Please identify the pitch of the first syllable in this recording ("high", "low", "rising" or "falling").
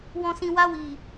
low